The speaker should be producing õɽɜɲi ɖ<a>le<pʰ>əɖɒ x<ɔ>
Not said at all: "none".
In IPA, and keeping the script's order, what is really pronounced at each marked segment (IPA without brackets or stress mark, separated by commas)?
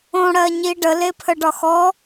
ə, pʰ, ɔ